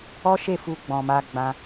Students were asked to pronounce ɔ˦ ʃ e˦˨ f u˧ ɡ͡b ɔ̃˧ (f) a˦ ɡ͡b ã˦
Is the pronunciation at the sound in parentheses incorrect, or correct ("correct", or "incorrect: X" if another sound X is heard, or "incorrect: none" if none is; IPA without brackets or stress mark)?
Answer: incorrect: m